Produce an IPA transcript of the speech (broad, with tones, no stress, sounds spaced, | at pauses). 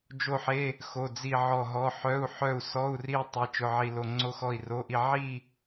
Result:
d͡ʒ o˥˧ ħ e˧˥˧ | x o˧˥˧ d͡z i˥˧ ʕ ɔ˥˧ ɦ ɔ˧˥˧ ħ œ˧˥˧ u̯ ħ œ˥˧ u̯ s ɔ˧˥˧ u̯ r i˥˧ u̯ tˤ e˧˥˧ t͡ʃ ʊ˧˥˧ ʕ i˥˧ l o˥˧ ŋ͡ǀ o˥˧ x ɔ˥˧ i̯ r o˧˥˧ ʔ i˥˧ ʕ i˥˧